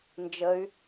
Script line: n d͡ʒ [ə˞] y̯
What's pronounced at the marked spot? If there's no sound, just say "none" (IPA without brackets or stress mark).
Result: ə